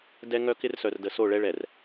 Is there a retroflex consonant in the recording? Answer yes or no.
yes